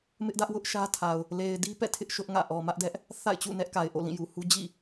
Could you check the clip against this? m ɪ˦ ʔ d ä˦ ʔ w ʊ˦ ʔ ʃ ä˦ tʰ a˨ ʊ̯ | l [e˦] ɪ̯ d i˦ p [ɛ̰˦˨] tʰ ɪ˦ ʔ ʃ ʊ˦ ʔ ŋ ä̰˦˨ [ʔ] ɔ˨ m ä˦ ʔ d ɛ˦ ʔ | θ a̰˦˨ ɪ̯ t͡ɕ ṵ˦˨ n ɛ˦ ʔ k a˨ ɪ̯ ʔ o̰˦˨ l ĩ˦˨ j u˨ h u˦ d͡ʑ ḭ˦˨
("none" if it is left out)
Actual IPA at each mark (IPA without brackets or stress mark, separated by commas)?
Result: e˨, ɛ̰˦˨, ʔ